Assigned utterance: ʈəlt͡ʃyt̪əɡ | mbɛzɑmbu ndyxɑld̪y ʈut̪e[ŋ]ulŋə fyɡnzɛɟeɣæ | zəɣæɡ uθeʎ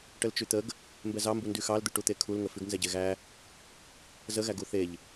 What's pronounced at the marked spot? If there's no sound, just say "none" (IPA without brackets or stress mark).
kʰ